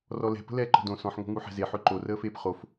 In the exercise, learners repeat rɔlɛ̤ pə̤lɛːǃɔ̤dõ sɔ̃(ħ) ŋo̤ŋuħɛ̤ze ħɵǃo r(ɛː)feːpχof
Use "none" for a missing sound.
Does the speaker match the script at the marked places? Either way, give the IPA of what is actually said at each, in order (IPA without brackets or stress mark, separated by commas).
ħ, əː